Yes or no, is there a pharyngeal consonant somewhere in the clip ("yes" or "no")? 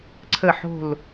yes